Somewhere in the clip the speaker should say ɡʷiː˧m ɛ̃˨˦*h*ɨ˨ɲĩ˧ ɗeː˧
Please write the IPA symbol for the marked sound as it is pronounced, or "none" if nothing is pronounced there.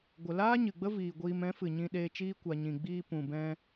f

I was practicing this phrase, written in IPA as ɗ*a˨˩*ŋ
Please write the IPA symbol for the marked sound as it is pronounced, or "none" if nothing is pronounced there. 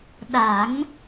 a˨˩˦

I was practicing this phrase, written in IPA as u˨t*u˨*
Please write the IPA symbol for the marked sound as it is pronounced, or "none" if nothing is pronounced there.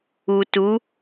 u˨˦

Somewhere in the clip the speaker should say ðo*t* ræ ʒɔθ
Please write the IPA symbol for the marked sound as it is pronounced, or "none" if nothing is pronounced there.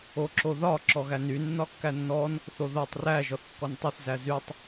tˤ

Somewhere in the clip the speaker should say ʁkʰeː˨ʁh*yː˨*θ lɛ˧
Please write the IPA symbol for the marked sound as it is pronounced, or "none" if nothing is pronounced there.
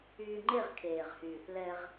yː˨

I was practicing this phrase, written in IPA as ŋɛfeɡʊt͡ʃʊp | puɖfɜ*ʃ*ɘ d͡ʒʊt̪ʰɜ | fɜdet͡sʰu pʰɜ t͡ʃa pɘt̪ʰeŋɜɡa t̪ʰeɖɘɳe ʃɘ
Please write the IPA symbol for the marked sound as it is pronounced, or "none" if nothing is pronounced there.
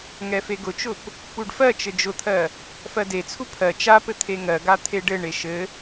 t͡ʃ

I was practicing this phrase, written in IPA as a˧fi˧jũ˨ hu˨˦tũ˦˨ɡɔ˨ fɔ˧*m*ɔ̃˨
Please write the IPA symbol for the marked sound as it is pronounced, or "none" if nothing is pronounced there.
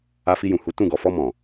m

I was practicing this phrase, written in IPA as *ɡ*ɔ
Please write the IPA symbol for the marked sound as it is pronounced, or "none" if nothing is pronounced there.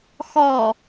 x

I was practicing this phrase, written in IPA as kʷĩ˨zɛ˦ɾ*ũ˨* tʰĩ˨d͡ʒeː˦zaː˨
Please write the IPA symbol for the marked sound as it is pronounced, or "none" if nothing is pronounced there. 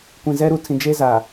u˨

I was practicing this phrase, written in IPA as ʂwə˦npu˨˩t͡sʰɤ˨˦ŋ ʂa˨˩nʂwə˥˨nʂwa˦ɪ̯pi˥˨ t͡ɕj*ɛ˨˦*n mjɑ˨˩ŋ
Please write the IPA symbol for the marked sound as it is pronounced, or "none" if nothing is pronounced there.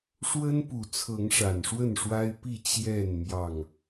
ɛ˥˨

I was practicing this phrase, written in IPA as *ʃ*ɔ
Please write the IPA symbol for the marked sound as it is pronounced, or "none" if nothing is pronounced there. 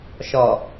ʃ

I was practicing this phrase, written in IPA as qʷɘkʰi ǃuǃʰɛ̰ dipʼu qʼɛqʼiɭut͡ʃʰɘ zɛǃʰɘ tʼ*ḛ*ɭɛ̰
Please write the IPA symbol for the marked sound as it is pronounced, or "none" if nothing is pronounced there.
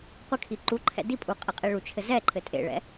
ḛ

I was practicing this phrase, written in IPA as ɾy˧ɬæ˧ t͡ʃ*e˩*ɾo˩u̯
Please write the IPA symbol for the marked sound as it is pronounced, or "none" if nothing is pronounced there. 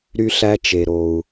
e˩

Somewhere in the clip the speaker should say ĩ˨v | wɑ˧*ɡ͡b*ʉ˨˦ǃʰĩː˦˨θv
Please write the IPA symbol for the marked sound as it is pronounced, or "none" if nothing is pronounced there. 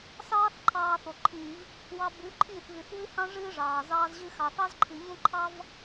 b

